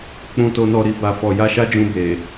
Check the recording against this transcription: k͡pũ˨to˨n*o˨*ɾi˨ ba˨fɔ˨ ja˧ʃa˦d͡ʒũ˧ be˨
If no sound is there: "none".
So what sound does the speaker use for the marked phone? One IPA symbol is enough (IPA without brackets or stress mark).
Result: ɔ˨